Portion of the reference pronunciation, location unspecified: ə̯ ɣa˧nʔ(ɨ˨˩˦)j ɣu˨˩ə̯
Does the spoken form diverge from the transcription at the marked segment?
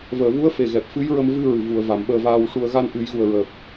no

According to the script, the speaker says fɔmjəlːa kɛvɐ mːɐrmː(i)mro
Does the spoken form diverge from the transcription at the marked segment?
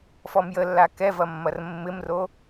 yes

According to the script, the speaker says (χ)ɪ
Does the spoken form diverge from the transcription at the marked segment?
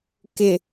yes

